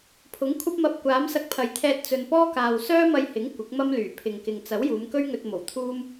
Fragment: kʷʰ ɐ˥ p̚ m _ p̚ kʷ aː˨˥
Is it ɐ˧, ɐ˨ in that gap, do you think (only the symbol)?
ɐ˧